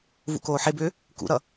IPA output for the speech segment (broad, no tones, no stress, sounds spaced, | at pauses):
v ṵ k oː ħ e b ʏː | k ṵ ɾ ʌ